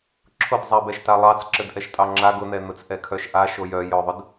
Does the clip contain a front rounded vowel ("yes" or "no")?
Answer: yes